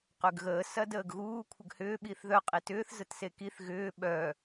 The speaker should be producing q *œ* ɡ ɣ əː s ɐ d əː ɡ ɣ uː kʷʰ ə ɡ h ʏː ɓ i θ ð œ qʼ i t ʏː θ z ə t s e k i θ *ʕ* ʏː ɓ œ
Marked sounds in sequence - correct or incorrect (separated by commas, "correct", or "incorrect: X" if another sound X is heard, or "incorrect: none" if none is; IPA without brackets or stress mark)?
incorrect: ø, incorrect: ɣ